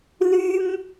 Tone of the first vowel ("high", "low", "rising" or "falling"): high